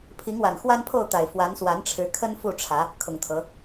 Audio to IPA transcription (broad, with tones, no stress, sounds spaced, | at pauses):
pʰ i˨˦ ŋ w a˨˩ n x w a˦ n pʰ o˥˨ ʊ̯ t̪ a˨˩ ɪ̯ f w a˨˦ n s w a˨˦ n ʈ͡ʂʰ ɻ̩˨˦ kʰ ə˦ n f u˥˨ ʈ͡ʂʰ ä˨˦ | kʰ ʊ˨˩ ŋ t̪ʰ ɤ˨˦